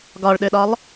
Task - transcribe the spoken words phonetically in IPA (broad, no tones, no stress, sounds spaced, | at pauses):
ɡ ɒ ɭ ɗ ø ɗ ɒ lˠ